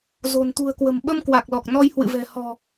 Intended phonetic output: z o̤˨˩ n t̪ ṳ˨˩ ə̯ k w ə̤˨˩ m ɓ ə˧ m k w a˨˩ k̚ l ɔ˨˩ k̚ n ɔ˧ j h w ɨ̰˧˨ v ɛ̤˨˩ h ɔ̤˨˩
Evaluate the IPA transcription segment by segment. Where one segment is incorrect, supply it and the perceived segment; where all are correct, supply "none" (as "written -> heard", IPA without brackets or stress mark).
none